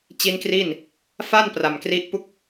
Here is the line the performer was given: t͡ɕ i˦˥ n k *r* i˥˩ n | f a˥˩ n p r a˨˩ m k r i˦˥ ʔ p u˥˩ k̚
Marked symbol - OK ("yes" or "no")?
yes